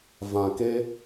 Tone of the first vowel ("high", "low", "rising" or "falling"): low